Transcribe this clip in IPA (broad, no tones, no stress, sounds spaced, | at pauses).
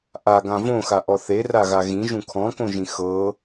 ʔ a ɡ ã v õ x a ʔ ɔ θ e r a ɣ a ɣ ĩ ʒ ũ kʰ ɔ̃ k õ ʒ ĩ x ɤ